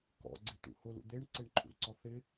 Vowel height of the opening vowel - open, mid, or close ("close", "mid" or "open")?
mid